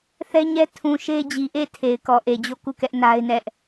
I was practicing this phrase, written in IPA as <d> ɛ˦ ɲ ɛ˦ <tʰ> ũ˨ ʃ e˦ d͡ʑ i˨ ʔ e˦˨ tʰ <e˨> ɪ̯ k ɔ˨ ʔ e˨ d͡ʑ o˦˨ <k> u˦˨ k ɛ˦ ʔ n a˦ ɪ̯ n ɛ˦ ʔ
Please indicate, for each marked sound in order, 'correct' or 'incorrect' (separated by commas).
incorrect, correct, correct, correct